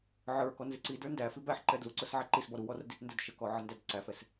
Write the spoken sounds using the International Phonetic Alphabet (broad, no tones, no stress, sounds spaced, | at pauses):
ʕ ə˞ k ɔ n z ɪ ǀ i d ə˞ n d æ f i b æ ħ ǃ ɛ d l u ǀ ʊ s ʕ æ ǃ i s b ɔ ɾ u w ɔ r d i t n d ə˞ d ʃ ə k ɔ ʕ ə n d æ d ǀ æ f ɛ s